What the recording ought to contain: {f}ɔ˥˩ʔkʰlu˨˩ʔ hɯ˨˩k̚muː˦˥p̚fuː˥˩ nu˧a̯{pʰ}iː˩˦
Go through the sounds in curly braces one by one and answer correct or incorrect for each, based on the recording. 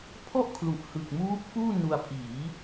incorrect, correct

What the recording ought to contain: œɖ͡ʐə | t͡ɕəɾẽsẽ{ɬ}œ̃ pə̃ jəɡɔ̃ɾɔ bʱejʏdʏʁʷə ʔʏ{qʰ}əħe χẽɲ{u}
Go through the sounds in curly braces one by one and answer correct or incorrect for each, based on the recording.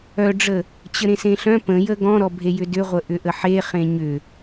correct, incorrect, incorrect

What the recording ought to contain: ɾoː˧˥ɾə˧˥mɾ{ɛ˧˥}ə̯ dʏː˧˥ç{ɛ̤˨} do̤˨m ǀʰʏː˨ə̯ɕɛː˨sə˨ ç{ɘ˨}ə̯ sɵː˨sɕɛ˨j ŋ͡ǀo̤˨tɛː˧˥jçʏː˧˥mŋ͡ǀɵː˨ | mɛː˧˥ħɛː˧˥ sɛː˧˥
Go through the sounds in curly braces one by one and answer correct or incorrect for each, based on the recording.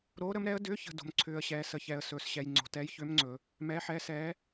correct, incorrect, incorrect

